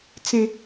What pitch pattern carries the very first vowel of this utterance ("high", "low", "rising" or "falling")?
high